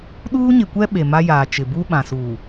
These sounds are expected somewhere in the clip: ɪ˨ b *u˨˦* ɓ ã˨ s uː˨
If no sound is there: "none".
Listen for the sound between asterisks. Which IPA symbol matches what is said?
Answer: u˦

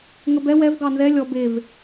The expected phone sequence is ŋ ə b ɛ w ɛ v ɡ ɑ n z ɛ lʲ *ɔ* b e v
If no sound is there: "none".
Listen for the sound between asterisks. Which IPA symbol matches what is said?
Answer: ɔ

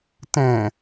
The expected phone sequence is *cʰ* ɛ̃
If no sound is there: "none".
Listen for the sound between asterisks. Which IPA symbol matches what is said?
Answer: t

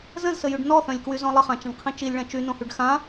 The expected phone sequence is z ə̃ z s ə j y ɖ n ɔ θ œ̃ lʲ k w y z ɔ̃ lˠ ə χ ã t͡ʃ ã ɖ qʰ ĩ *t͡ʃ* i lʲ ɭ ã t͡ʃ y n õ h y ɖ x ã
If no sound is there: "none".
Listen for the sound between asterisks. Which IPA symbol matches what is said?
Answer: t͡ʃ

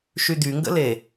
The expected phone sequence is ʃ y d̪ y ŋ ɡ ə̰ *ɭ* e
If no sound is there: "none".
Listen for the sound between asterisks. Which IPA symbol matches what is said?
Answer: l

